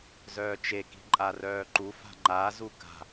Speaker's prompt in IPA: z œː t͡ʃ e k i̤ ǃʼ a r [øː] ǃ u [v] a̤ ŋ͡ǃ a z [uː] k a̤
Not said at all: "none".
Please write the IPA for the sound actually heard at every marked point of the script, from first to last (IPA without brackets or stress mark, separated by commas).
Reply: œː, f, u